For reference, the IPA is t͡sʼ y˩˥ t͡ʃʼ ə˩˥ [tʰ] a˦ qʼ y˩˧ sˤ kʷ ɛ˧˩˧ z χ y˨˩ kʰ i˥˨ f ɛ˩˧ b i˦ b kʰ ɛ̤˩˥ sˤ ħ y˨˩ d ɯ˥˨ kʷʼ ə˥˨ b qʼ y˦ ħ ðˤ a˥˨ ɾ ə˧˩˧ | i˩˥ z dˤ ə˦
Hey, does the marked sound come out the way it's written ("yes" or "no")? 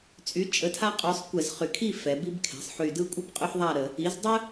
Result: yes